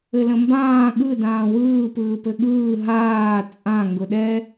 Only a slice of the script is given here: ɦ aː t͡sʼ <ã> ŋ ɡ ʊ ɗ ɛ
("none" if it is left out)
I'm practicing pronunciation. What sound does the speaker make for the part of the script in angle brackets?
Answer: ã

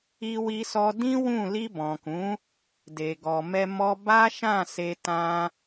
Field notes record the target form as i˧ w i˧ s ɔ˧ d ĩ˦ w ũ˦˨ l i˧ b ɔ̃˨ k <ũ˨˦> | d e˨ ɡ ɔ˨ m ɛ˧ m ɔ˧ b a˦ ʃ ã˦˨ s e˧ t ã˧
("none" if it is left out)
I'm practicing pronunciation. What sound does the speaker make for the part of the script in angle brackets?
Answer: ũ˨˦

